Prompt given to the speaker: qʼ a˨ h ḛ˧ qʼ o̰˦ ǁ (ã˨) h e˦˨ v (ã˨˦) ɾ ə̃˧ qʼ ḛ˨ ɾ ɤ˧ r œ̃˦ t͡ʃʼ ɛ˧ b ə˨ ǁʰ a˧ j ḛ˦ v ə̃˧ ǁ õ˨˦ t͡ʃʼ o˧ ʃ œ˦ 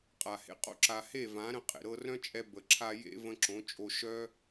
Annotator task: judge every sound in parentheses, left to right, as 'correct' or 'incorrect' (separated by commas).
incorrect, correct